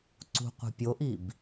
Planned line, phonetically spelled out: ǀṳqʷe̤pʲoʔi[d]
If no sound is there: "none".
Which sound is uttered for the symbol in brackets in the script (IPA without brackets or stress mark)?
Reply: b